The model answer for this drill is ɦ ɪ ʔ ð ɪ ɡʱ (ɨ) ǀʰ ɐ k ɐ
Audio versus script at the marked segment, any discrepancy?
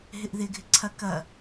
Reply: yes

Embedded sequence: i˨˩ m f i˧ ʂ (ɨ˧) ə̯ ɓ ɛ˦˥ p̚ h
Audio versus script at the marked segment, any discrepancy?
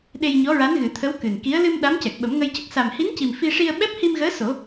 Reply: yes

